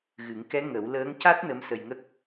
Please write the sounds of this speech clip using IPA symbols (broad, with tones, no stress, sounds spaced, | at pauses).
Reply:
ɣ ɨ˨˩˦ ŋ k ɛ˧˥ ŋ ə˨˩˦ w l əː˧˥ ŋ c a˦˥ t̚ n ə˧˥ m s ə˧ j ŋ ə˦˥ k̚